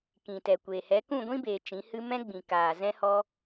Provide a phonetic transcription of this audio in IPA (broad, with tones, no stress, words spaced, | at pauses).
kĩ˨tɛ˨kʷeː˨ hɛ˨˦ kũ˦˨ɡʷĩ˦beː˨ t͡ʃĩ˨˦hɨ˦ mɛ̃˦ ɡ͡bĩ˨kaː˨ zɛ̃˦hɔ˦